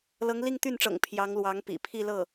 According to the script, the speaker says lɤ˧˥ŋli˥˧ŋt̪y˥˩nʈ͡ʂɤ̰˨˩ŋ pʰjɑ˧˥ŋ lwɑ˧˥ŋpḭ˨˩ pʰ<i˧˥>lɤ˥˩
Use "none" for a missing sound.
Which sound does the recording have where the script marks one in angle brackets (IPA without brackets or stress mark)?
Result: i˥˧